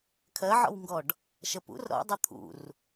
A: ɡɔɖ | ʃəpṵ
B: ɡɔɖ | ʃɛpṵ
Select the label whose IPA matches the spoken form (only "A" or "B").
A